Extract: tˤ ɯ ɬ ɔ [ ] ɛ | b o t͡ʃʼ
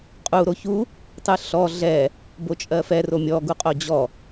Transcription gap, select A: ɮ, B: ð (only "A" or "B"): A